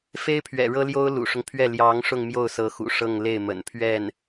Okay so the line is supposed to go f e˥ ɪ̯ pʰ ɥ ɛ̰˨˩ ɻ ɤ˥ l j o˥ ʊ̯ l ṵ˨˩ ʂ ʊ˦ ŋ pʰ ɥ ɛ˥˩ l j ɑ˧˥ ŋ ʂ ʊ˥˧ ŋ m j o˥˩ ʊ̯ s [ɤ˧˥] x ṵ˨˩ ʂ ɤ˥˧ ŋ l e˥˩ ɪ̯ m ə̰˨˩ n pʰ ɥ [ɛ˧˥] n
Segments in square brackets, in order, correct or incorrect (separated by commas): correct, incorrect